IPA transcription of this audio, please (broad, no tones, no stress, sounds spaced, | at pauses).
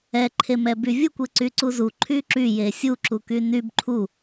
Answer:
ɛ ǃʰ e m ɛ b y vʲ u kʷ e ǀ y ǀ u z u ǃʰ y ǁ y j e sʲ u ǁ u k y n y b ǃʰ u